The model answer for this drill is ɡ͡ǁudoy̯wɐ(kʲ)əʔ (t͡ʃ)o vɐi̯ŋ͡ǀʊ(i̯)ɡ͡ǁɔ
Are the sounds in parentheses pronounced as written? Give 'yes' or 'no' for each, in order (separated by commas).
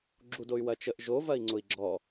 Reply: no, no, yes